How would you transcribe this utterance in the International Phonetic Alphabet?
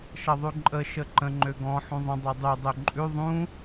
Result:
ʃ ʌ ðˤ ʉ ǃʼ ə ʃ ə ǃ ə̃ ŋ͡ǃ ø ɡ ɔ̃ ħ ũ ðˤ ə̃ dˤ ø dˤ y dˤ ø ǃʼ ʉ ðˤ ũ

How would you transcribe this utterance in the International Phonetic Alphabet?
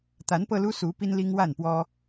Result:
t̪ a˨˦ n p ɤ˧ l u˦ s u˨˦ p i˦ n l i˦ ŋ w a˥˨ n p w ɔ˦

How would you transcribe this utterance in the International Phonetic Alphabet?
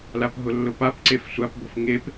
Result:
l a p ɦ ʊ lː ʊ p a p ǀ e f sʷ a p b o f ŋ e p

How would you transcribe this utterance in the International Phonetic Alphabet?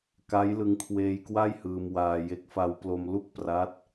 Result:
k a˦˥ j l ɯ˧ ŋ kʰ w eː˧ j k w a˥˩ j h ɯː˧ m w aː˧ j e˦˥ k̚ f a˧ w p l o˧ m l u˥˩ k̚ p r a˦˥ t̚

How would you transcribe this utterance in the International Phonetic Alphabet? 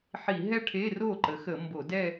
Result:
ħ i˧˩˧ ɦ ɛ˥˧ ʈʰ e˧˥˧ r o˥˩ ǃ ə˩˥ x ə˧˩˧ m b o˧˩˧ d ɛ˥˧

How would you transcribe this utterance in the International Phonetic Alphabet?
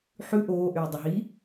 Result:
ħ ʉ ʔ oː ʔ yː dˤ ɵ ɦ i

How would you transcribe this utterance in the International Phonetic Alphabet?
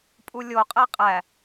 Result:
pʼ u lʲ o qʼ æ qʼ æ

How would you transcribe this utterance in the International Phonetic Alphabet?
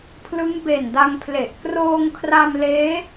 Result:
pʰ l ɯ˦˥ ŋ b e˨˩ n d a˧ ŋ pʰ l e˨˩ ʔ k r oː˧ ŋ kʰ r a˧ m l eː˦˥

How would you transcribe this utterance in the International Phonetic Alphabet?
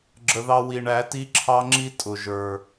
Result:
ɡ͡ǁ ə˨ ð ɑ˦ w i˨ ɳ æ˨˦ t i˦ ǁʰ ɑ˦ ŋ͡ǁ i˦ tʼ ʊ˨ ʒ ə˞˨

